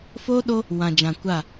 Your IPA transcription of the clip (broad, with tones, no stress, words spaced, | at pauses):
foː˦ɗo˦ | wã˨d͡ʒã˨kʷa˦˨